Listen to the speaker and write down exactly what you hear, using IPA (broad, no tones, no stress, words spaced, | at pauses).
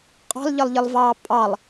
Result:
qʼɑ̤lʎʌlˠʎɪlˠvɑː pʼɑlˠ